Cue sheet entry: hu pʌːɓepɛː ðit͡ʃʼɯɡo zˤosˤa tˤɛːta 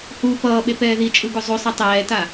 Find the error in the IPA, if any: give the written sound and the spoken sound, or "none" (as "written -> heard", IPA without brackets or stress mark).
none